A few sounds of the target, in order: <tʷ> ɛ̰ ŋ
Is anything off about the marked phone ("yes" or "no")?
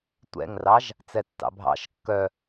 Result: no